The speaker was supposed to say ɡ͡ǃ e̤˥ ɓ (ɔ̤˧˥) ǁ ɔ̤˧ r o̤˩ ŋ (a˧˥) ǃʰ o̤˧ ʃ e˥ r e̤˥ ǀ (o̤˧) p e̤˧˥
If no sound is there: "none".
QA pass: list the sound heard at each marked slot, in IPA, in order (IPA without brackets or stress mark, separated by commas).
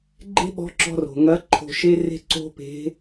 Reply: ɔ̤˧˥, ɐ˧˥, o̤˥